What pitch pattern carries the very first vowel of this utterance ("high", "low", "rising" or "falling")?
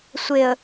low